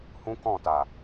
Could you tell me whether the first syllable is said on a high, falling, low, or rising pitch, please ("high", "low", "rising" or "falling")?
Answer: high